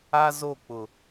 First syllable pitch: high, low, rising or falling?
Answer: high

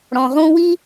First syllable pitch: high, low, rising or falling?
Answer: low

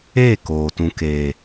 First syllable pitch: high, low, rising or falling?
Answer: falling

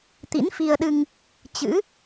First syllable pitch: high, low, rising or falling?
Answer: rising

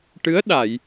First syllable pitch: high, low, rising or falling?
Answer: rising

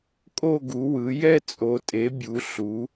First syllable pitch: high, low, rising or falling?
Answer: falling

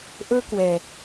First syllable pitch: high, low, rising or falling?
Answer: high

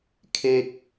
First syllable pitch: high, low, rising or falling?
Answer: high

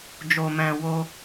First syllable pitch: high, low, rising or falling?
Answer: low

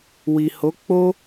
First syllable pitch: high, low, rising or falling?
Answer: low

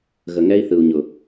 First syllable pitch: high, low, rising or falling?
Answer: low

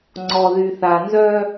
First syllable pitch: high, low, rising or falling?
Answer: low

